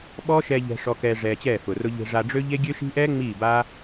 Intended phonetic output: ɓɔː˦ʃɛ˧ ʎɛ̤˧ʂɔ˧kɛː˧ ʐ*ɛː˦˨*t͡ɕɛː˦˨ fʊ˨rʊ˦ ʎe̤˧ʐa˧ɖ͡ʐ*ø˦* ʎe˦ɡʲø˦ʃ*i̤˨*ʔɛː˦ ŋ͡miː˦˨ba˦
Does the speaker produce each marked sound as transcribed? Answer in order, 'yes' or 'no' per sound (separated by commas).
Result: no, yes, no